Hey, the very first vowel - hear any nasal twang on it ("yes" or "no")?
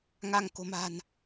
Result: no